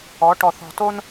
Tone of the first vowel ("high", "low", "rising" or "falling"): rising